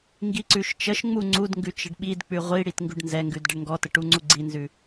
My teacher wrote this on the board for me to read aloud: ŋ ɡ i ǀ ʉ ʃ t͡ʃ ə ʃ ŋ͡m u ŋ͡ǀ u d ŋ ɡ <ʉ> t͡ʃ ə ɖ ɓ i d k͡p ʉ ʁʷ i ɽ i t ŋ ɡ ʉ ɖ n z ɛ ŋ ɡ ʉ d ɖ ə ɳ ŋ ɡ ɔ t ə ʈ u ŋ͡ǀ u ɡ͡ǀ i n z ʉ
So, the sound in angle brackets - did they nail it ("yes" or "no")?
yes